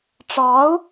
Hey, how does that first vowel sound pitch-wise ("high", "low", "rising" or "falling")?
rising